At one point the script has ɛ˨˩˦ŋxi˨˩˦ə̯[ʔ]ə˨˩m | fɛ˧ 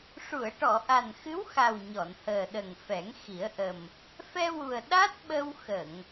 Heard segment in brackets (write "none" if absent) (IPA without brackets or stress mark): ʔ